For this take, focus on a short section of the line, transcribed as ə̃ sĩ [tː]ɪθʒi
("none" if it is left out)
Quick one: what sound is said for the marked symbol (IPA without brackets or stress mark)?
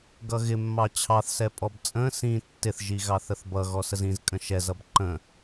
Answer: tː